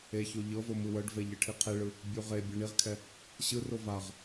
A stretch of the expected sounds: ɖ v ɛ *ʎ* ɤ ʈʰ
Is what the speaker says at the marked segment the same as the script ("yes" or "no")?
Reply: yes